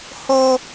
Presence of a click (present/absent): absent